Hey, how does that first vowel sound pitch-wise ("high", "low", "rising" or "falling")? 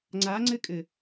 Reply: rising